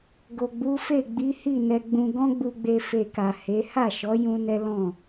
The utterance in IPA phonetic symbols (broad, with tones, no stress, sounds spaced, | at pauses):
ɡ o˨ ɡ͡b u˨˦ f e˦˨ ɡ͡b i˨˦ h i˦˨ n ɛ˧ ɡ͡b ũ˧ ɡ ɔ̃˦ ɡ͡b u˧ ɡ͡b e˧ f e˧ k a˨ h e˨˦ h a˦˨ ʃ ɔ˨˦ j ũ˦ n ɛ˦ l ɔ̃˦˨